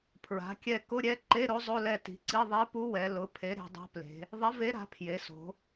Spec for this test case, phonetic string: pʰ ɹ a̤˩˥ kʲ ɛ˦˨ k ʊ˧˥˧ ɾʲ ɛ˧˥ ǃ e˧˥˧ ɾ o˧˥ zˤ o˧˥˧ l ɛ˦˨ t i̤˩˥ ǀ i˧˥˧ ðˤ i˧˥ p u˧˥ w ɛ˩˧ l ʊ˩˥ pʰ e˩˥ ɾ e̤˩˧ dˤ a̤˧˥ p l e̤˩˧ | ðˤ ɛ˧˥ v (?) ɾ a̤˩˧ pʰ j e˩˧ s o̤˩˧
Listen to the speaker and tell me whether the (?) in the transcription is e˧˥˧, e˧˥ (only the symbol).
e˧˥